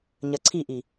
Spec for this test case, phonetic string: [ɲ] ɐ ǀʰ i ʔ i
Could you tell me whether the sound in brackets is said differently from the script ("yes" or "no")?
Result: no